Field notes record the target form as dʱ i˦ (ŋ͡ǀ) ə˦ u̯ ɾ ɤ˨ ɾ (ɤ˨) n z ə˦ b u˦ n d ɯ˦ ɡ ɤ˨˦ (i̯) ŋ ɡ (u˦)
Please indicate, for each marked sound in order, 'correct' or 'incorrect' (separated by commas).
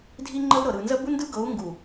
incorrect, incorrect, incorrect, incorrect